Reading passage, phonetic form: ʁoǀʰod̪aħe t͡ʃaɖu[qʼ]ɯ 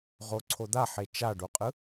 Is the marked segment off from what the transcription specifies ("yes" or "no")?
no